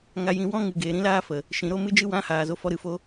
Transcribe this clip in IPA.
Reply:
ŋ a˧ j ĩ˧ w ɔ̃˦ ŋ ɨ˨ ɡ eː˨ ɾ ĩ˦ l aː˦ f ə˨ | ʃ ĩ˨ ɾ o˦ m ɨ˧ d͡ʒ ɨ˧ w ã˨˦ h aː˨ z o˦ f ɔ˦ ɾ ɨ˧ f o˦

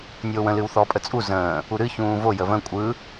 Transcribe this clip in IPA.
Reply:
nʲ oː w ə̃ l ɨ w θ ɔ pʼ ə t͡sʼ u z ə̃ː | u ɾ ɨ ç ũː v o j ə v ə̃ kʷʼ ɯ

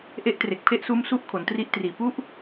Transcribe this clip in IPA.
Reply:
ʔ e˦˥ ʔ t r e˨˩ k̚ pʰ e˥˩ ʔ s uː˦˥ m s u˦˥ ʔ kʰ o˩˦ n t r i˦˥ ʔ t r iː˨˩ p u˦˥ ʔ

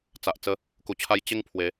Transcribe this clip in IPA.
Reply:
t͡s a˨ ʔ t͡s ə˧ | k u˧ t͡ɕʰ a˦ j t͡ɕ e˦ ŋ pʰ w e˨˦

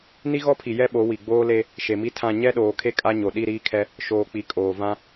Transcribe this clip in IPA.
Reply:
n i˦ ɣ ɔ˦ pʰ i˨ j ɛ˦ ɓ o˨˦ w i˨ ɡ͡b oː˦ l e˦ | ʃ e˨ m i˦ tʰ ã˦˨ ɲ ɛ˦ ɗ oː˨ kʰ e˦ kʼ a˦ ɲ o˨ ɗ i˦˨ ɾ iː˦ kʰ ɛ˦ | ʃ oː˨ k͡p i˨ kʼ oː˨ v ã˦

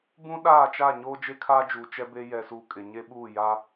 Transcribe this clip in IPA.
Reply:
b ũ˦ ɗ aː˦˨ t͡ʃ a˦˨ ɲ oː˦ d͡ʒ e˦ kʰ aː˦ d͡ʒ uː˨ t͡ʃ ɛ˦ b e˦ j ɛ˨ s uː˨ kʼ ɪ˨ ɲ e˦ ɓ uː˦˨ j a˦

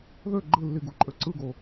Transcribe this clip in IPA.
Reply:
ð ø ɡ͡ǃ ɯ lː i ɡ u ǃʼ ø ǀ ɯ ɡ o

